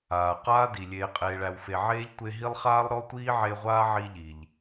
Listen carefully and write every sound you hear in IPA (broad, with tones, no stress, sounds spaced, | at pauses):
aː˩ q aː˥ d i˩ lʲ eː˨ qʼ eː˨ ɭ æ˨ w f e˨ ʕ eː˥ ʎ tʷ e˦ ɦ i˥ lˠ χ aː˥ lˠ ɾ ɔ˥ tʷ iː˥ ʕ e˦ ʁʷ aː˥ ʕ i˦ ʎ i˩ ʎ